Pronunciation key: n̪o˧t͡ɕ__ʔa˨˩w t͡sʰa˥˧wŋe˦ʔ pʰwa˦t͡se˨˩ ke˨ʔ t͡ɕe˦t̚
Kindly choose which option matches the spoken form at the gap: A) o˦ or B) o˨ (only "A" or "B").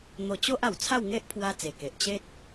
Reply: A